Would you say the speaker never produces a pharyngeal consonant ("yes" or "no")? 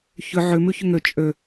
no